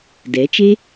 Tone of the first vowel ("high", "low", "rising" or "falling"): rising